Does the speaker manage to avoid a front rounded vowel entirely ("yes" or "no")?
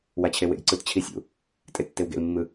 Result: yes